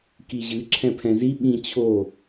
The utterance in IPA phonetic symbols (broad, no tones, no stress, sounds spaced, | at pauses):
k i ʑ ɨ ǁʰ ɛ̃ pʰ ɛ̃ z i ɓ ĩ t͡ɕʰ o